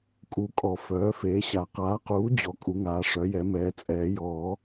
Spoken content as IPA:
kʼ u˨˩˦ kʼ ɔ˨˩˦ f œː˩˥ f eː˩˥ ɕ a˨˩˦ q aː˩˥ q uː˩˥ d͡ʑ ɔ˩˥ kʼ u˩˥ ŋ aː˩˥ ʂ œ˩˥ j ɛ˩˥ m ɛː˩˥ t͡sʼ ɛː˨˩˦ j ɔː˨˩˦

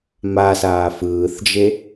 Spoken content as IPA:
m a s aː f ɯː θ d͡ʒ e

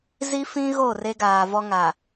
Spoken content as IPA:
z i˦ f ĩ˦ ɣ o˦˨ r e˦ ɡ aː˨ v ɔ˦ ŋ a˨

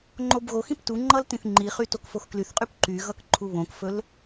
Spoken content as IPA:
ŋ͡ǃ o b ɣ o x ĩ p t u ŋ͡ǃ ʌ l t ĩ θ ŋ͡ǃ i χ y t o k f o x k l y θ qʼ y p ǃ y ɣ ʌ k ǃʰ u β õ k f ɵ l

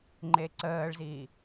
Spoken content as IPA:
ŋ͡ǃ e ǀ əː ɭ z iː

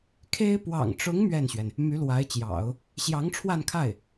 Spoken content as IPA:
kʰ e˥ ɪ̯ p w ɑ̰˨˩ ŋ ʈ͡ʂ ʊ˧˥ ŋ m ɥ ɛ˥˩ n ɕ ɥ ɛ˩ n | m y˧˥ l w a˧˥ ɪ̯ t͡ɕ j ɑ̰˨˩˦ ʊ̯ | ɕ j ɑ˧˥ ŋ ʈ͡ʂʰ w a˥˧ n kʰ a˥˩ ɪ̯

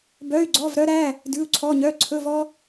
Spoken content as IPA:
b œ˧˥˧ y̯ ɡ͡ǀ ɔ˧˥˧ v ɾ œ˥ ɾ æ˧˥˧ | d ʉ˧˥˧ u̯ ǀʰ ɔ˧˥˧ ɲ œ˧˥˧ ǀʰ ɵ˧˥˧ v ɔ˥

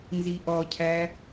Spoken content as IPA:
n z i ʔ ɔ cʰ æ

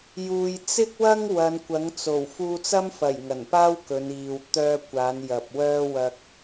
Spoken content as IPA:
j uː˨ j t͡s ɪ˥ k̚ w ɐ˥ ŋ w ɐ˨˧ n kʷ ɐ˨˥ ŋ t͡s o˨˩ w f uː˧ t͡s ɐ˥ m f ɐ˨˩ j ŋ ɐ˨˩ n p aː˥ w k ɵ˨˧ n iː˨ w t̪ œː˧ kʷ aː˨˧ n j ɐ˨ p̚ w œː˧ w ɐ˧ k̚

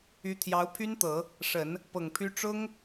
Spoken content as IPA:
y˧˥ t̪ʰ j ɑ˧˥ ʊ̯ pʰ y˥ n t̪ ɤ˨˩˦ | ʂ ə˨˩˦ n | p ɤ˨˩ ŋ pʰ y˥ ʈ͡ʂ ʊ˥ ŋ

